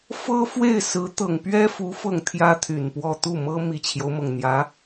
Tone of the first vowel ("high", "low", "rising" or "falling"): high